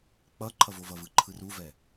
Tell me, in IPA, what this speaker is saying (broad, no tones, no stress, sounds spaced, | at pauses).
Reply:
k͡p ʌ ǃʰ ʌ v o v ʌ v ɯ ǃʰ ɯ r u v ɛ